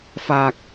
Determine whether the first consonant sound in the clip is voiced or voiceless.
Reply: voiceless